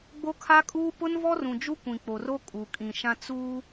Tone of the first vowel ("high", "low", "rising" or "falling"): high